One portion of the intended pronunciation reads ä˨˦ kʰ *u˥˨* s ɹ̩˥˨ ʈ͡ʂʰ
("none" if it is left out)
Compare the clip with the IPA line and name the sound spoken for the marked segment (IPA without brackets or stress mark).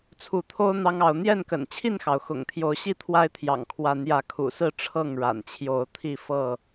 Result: ṵ˨˩